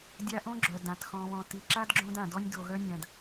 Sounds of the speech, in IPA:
dʲ a˦ ʔ õ˥ ɡ͡ǁ œ˩ d ã˩ t x ɔ̃˨ β ɔ̃˨ t i˨ ǁ a˥ d ɡ͡ǁ õ˦ d ã˩ d ɔ˦ nʲ d o˨ ɣ œ˥ nʲ ã˨ d

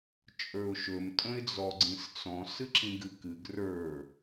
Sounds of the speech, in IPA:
t͡ʃʼ ə˞ ʊ̯ ʃ ɵ m tʼ ə̃ ɪ̯ d͡z ɔ ɡ͡ǀ ĩ s t͡s ɔ̃ s ɨ ǁ ĩ ɡ ɨ k ɨ ɡ r ə˞

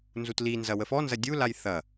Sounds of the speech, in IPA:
n z u t l i n z ɐ w ə f ɔ n z ɐ dʲ u l a j θ ɐ

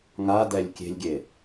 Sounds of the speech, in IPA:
ŋ a d ɛ lʲ kʲ e̤ lʲ ɡʲ e

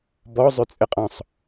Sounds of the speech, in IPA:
b ɔ zˤ ø t͡sʼ ɘ qʼ ɔ̃ sˤ

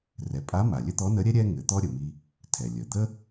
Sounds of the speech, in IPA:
r ɛ˩˧ pʼ a˧˥ m a˩ lʲ ɘ˥ t̪ ɔ˧˥ n ə˧˥ ɾʲ ɛ˥ ɾʲ ɛ˥ ŋ ɘ˩˧ t̪ ɔ˥ ɾʲ ə˩ m i˧ | tʰ ɛ˩ lʲ ə˩ d̪ ə˥

